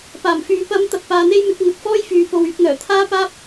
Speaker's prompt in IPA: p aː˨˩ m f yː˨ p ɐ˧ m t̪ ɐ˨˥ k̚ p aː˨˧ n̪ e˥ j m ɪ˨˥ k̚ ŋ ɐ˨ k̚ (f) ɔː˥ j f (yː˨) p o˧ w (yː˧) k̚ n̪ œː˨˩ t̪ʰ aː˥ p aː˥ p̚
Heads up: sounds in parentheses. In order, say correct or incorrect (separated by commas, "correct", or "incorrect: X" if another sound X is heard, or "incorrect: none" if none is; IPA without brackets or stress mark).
correct, correct, incorrect: yː˨˥